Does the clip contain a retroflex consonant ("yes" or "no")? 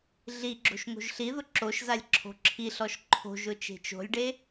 yes